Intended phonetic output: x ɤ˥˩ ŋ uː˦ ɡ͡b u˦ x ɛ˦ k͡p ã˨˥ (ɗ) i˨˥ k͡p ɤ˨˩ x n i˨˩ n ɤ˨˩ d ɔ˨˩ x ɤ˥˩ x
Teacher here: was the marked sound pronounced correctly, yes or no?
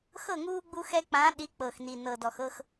yes